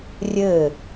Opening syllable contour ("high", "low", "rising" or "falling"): falling